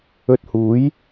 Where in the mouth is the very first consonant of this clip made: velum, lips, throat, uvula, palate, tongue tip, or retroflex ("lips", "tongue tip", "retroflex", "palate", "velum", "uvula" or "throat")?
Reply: tongue tip